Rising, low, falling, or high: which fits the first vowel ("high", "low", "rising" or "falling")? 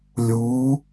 rising